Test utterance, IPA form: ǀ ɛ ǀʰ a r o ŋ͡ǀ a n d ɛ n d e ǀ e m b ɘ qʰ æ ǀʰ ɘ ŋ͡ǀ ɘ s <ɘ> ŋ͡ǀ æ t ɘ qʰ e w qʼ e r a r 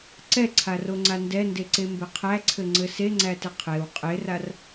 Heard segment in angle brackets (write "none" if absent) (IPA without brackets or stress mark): e